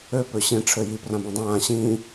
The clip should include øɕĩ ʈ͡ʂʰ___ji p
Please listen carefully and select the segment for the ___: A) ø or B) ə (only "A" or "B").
A